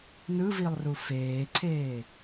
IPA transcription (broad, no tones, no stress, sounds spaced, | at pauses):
n ɯ v i lˠ r u f eː ǀʰ eː